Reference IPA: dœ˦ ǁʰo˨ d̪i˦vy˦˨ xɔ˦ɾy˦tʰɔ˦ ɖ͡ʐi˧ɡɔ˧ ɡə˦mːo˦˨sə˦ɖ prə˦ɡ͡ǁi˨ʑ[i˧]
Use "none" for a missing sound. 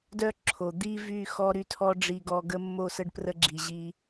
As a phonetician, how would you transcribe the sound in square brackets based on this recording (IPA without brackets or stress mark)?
i˧